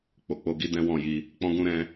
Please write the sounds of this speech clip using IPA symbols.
k͡p o˨ k͡p o˧ ɡ i˦ d ɛ̃˦ w ɔ̃˦˨ j i˧ | k͡p ɔ̃˦ ɡ ũ˦ ɾ ɛ̃˦

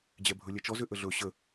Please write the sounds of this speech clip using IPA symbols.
d͡ʑ ɛ bʱ ɵ lʲ ɛ t͡ʃ ɔ z ʏ ʔ ə ɮ ɵ ɕ ə

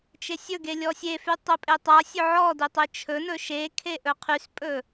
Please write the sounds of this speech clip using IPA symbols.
t͡ʃ e sʲ ɵ ɡ e lʲ ɔ sʲ e f y tˤ ɵ pʼ e tˤ a sʲ ɵ ʕ ɔ d e tˤ e t͡ʃʰ ɵ n ɵ ʃ e kʰ e ʔ ɵ qʰ y s pʼ ɵ

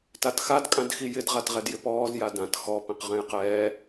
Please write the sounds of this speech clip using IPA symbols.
t a t x a d kʼ ã d x i j ɪ d ʁ a t ʁ ɛ d j ɪ p ɔː z j a d ã t x ɔ p ĩ q ʁ ɛ̃ j q ɛː

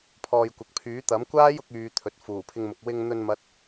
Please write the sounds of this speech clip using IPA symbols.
pʰ ɔː˨ j kʷ ɐ˨ k̚ pʰ yː˨˥ t̪ ɐ˨˥ m kʷ aː˥ j ʊ˨˥ k̚ yː˧ t̪ʰ ɵ˨ t̚ f uː˨˩ pʰ ɪ˧ ŋ m ʊ˨ k̚ w ɪ˧ ŋ n̪ ɵ˧ n m ɐ˥ t̚

